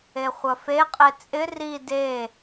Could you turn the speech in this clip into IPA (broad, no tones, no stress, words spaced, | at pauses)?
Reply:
eχʷɐfe qʼet͡sʼɪ ri de